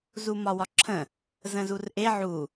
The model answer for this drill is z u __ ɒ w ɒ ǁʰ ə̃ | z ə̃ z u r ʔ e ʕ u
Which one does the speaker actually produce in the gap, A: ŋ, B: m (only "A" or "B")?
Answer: B